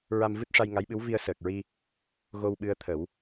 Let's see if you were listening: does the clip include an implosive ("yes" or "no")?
yes